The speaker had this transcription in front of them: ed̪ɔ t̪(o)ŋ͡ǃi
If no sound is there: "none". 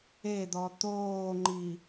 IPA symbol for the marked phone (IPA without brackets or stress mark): oː